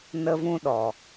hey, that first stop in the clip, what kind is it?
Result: implosive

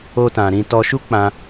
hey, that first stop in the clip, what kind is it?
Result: plain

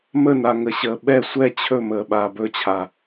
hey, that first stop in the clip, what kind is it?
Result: implosive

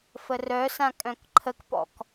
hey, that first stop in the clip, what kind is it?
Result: ejective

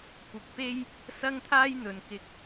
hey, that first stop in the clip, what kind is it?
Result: plain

